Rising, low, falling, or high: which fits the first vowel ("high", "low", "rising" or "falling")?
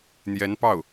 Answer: rising